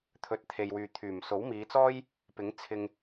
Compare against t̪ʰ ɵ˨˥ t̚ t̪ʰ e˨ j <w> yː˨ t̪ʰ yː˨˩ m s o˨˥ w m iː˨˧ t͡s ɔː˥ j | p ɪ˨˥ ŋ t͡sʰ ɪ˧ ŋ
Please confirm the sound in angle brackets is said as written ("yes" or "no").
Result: yes